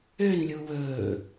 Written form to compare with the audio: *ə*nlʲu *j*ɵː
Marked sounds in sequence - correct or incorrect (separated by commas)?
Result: incorrect, incorrect